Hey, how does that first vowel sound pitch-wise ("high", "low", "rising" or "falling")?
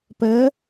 rising